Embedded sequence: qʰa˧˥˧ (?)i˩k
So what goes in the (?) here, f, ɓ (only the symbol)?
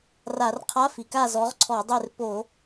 f